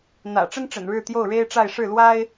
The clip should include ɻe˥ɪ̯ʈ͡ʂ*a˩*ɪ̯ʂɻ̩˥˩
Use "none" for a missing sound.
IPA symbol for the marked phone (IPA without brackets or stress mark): a˥˧